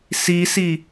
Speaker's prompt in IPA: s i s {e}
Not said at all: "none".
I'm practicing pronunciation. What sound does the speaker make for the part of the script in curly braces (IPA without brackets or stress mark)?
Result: i